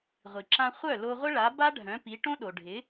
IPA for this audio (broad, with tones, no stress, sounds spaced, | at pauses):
ʁʷ i˩ ǁ ã˧ χʷ œ˥˩ l o˧ ʁʷ ə˥ ɭ a˩˥ b a˥ ɖʱ œ̃˩˥ p i˩˥ ʈ õ˥ ɗ o˩ ɖʱ ɪ˩˥